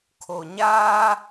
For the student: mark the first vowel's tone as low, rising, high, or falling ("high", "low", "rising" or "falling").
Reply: low